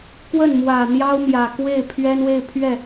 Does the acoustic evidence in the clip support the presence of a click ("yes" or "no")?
no